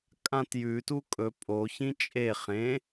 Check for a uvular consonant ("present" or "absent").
present